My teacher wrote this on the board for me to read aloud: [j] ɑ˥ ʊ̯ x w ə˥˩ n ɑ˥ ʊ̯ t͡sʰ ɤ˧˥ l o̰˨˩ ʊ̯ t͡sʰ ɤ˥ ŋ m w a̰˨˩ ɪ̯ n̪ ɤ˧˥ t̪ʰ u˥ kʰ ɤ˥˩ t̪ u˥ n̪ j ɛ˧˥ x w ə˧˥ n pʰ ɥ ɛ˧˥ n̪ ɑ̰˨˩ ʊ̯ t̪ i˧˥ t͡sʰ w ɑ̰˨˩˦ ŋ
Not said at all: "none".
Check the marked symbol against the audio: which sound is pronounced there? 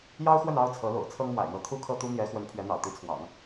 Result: j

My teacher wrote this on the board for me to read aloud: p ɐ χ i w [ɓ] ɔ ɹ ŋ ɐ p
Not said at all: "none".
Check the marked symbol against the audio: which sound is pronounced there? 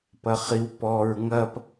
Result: p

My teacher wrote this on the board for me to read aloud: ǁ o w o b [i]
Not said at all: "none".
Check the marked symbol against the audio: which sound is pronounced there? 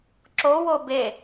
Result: e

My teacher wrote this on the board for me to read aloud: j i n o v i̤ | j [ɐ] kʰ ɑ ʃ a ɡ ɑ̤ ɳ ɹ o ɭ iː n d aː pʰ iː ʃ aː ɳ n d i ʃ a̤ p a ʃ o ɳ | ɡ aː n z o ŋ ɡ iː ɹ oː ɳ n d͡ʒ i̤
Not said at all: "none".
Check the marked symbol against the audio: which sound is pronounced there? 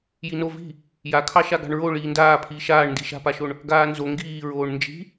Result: a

